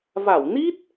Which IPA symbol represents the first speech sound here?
v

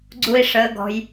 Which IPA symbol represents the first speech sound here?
ɡ͡ǀ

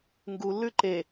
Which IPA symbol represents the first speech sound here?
ŋ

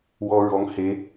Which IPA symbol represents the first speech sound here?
w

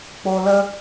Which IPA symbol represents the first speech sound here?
k͡p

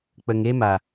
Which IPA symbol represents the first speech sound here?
k͡p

